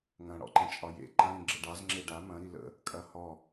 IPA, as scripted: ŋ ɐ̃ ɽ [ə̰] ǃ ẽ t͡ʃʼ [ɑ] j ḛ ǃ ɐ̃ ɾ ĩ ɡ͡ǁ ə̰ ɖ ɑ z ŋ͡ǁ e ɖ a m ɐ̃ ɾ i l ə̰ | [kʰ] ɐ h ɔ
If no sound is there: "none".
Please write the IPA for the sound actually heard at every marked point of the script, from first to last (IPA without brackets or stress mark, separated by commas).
ɔ̰, ɒ, kʼ